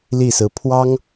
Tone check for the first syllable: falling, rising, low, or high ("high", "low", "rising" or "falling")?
falling